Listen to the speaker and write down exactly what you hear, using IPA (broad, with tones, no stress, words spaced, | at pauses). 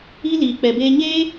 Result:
i˦ liː˨ k͡pɛ˨beː˧ ɲeː˦